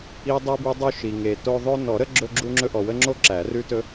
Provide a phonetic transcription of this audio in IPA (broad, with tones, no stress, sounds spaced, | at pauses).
i˨ dˤ i˨ b ʉ˨ dˤ u˦ ʃ i˨ ŋ e˨ t o˦ ðˤ ɵ˦ n ɔ˨˩˦ ɾ ə˦ ɡ͡ǁ ɵ˦ ɡ͡ǁ u˦ ŋ͡ǁ ɵ˦ ʔ ɔ˨ w ə˦ ŋ͡ǁ o˦ ǁ æ˨˩˦ r ʉ˦ t ɵ˦